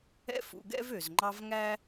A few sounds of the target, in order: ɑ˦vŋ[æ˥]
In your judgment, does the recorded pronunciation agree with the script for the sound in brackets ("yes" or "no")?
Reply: yes